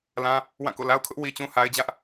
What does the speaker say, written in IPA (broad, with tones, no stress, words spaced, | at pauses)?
lã˦ | wã˦˨ko̰˦˨ la˦ʊ̯kʰʊ˦ʔ wi˦t͡ɕũ˦ ha˦ɪ̯d͡ʑä˦ʔ